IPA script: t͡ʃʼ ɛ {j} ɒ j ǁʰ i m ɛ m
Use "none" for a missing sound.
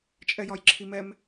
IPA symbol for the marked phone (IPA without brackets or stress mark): j